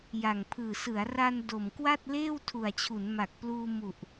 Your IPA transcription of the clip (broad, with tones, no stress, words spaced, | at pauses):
ja˨˩ŋpʰɯː˨˩sɯ˩˦a̯ ra˧n do˨˩mkwa˥˩t̚leː˥˩w tʰu˨˩a̯t͡ɕʰu˩˦nma˨˩k̚pluː˧ mu˨˩ʔ